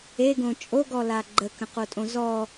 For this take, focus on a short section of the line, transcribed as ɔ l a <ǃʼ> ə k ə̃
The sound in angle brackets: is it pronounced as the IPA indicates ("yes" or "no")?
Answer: no